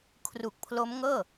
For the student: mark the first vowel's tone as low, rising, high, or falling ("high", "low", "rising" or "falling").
low